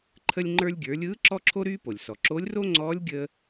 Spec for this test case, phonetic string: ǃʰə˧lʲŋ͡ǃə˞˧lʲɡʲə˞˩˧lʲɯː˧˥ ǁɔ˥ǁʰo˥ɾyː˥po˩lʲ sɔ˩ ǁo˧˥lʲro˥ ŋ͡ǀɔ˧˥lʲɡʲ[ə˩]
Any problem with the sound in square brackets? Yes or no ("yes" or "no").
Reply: yes